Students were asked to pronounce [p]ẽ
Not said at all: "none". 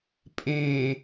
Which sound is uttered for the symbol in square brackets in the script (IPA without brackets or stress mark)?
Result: pʼ